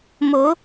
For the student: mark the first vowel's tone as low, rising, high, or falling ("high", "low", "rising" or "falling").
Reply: rising